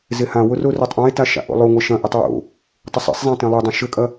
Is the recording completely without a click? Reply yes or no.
yes